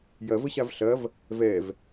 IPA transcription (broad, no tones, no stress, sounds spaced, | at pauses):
j ɐ v ə ɕ a v ɬ ɐ v | v ɛ v